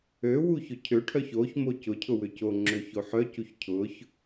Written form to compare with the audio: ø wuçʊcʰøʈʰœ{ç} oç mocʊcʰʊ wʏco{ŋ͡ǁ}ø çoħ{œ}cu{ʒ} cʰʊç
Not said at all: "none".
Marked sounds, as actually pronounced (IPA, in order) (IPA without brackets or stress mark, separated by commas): ç, ŋ͡ǁ, œ, ç